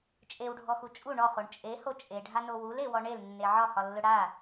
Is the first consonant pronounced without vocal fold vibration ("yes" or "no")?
yes